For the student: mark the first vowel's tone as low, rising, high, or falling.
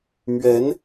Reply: rising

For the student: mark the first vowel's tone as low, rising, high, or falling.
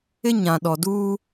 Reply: high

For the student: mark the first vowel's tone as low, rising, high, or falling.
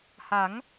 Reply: rising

